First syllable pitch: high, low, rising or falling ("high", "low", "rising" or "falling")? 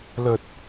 low